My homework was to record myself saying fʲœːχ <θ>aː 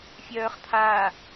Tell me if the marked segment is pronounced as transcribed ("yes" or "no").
no